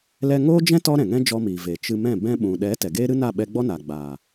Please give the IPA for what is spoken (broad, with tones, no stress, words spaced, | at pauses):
lɛ˧ŋoː˦d͡ʒɛ̃˦ tɔ˦ɾɛ̃˨ŋɛ̃˦ d͡ʒɔ˧miː˨veː˨ t͡ʃɨ˧mɛ̃˦˨ bɛ̃˧ ɓũ˨ɗɛ˨˦ tɛ˨ɡeː˦ɾɨ˦ na˦˨ɓɛ˧ɡ͡bɔ˦na˨ ɡ͡baː˨